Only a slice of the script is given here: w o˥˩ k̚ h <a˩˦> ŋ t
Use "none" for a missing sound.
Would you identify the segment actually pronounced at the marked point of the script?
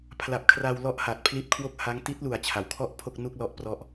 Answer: a˦˥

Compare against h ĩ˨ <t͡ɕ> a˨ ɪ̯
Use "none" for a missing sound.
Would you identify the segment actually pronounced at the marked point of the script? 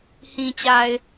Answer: t͡ɕ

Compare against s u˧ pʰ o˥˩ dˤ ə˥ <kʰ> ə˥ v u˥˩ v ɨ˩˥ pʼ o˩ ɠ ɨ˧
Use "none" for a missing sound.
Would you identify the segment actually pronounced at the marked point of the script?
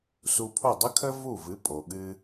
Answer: kʰ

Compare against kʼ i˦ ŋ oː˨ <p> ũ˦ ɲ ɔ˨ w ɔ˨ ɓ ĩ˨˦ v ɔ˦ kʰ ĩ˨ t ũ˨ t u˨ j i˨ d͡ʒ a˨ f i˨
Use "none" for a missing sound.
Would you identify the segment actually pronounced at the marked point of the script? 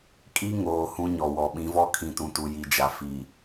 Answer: h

